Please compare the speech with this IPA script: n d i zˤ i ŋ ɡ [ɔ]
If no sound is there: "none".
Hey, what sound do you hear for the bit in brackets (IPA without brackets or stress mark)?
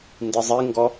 ɔ